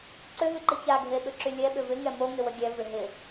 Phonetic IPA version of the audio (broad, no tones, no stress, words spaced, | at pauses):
ǀʏɦyǃə çaɡʱeɓʏǁy lʲɛɓʏ vɪŋɛ moŋɪwə ɡʲɛvɪ ɦɪ